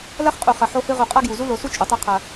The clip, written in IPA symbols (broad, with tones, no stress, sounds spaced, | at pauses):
l ɐ˦ χ qʼ u˨ χ ɐ˨ ħ o˦ h ɨ˦ ʁ u˨ qʼ a˦ ɡ j u˨ z u˦ l o˨˦ s u˦ t͡ʃʼ o˨˦ tˤ e˦ qʰ ɐ˦